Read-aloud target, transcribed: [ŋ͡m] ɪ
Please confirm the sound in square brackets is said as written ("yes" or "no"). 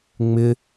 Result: yes